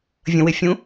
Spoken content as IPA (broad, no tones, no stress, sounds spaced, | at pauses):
vʲ ə̃ w ɪ fʲ ũ